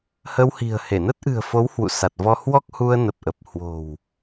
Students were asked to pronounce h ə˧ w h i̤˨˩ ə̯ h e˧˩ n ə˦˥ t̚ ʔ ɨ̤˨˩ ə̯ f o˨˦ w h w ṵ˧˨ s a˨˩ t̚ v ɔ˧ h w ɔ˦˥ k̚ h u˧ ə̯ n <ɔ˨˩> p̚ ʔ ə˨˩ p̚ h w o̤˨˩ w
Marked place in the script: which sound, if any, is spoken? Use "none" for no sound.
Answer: ə˨˩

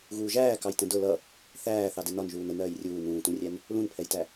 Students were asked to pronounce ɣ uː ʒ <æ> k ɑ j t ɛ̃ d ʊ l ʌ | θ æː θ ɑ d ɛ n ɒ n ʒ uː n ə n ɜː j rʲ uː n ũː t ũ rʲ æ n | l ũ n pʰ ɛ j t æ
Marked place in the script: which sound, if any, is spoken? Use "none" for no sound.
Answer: æː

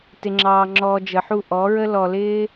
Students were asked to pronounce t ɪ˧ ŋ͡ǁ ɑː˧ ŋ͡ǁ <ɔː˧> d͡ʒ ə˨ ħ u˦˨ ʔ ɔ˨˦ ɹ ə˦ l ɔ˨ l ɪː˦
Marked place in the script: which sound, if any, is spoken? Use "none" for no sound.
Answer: ɔː˧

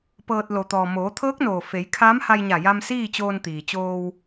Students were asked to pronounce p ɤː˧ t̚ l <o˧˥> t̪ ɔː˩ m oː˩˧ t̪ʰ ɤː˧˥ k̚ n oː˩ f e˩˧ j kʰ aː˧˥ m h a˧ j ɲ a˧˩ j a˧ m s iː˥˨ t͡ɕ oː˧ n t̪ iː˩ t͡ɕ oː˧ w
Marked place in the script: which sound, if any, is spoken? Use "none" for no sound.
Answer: o˩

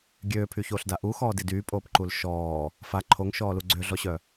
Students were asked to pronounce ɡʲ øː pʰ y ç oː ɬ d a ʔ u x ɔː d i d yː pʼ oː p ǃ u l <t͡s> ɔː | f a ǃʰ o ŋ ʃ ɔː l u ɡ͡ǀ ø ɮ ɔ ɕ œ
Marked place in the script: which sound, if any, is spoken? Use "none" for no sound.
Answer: ʃ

